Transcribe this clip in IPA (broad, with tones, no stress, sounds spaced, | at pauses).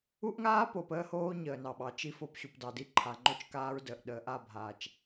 u˦ ʔ ŋ aː˦ p o˨ p əː˦ h oː˦ ɲ əː˨ n ɑ˨ ɓ ɑ˨ t͡ʃ i˦˨ f o˦˨ p ɕ u˨ p d ɑ˨ d i˦ ǃʰ a˨ ŋ͡ǃ o˦ t͡ʃ k aː˦ ɹ d ə˨ ʔ ɗ əː˨ ʔ a˦˨ bʱ aː˨ t͡ʃ